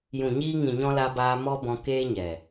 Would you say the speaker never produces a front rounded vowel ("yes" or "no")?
yes